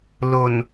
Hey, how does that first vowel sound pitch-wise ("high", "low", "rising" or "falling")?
low